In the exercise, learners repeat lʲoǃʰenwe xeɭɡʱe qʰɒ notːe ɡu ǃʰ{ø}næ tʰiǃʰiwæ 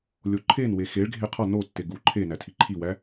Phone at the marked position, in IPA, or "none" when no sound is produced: e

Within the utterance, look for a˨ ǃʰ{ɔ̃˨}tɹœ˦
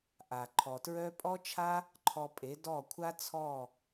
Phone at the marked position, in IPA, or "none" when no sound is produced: ɔ˨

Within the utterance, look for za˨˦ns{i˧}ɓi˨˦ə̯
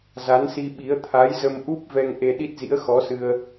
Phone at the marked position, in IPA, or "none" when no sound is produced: i˧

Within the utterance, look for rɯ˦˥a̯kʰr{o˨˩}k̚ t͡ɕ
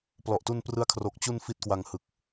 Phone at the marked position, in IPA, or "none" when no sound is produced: o˨˩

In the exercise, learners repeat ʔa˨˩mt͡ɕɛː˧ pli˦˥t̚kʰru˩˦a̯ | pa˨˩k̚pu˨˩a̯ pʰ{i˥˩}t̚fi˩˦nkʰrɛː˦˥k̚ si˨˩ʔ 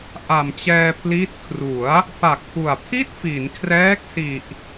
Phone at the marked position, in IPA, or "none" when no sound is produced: i˥˩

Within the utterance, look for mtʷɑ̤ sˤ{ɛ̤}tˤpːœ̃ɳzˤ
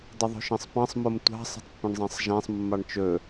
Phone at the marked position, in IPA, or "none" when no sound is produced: ɛ̤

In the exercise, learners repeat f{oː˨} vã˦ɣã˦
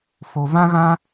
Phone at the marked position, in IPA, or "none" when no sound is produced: o˨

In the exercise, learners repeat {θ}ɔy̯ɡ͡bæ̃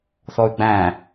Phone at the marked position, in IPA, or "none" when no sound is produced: θ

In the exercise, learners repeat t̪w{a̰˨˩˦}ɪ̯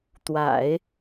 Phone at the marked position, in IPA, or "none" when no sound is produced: a̰˨˩˦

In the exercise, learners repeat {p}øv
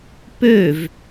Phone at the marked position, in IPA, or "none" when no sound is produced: p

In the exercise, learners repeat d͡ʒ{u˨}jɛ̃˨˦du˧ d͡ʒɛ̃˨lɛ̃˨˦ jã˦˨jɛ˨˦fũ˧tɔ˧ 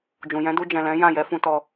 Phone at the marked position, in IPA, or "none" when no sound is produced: ũ˨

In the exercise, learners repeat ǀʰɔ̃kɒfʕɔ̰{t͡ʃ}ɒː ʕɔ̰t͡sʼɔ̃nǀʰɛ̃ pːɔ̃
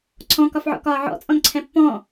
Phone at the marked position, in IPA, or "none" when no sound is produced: k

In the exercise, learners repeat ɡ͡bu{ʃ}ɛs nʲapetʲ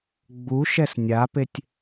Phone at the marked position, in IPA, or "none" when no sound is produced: ʃ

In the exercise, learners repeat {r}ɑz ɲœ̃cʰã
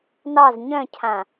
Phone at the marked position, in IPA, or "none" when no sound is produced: n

